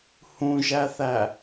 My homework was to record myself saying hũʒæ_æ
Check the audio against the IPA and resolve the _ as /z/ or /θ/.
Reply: θ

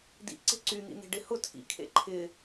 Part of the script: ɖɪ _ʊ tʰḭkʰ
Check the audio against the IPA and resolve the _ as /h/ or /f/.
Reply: h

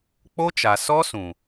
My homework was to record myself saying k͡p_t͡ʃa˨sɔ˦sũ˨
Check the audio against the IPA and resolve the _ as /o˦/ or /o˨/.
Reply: o˦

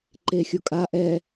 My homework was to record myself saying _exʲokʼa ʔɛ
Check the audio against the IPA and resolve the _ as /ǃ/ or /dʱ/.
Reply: ǃ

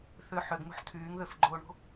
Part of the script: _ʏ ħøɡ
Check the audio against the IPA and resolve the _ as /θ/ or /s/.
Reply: θ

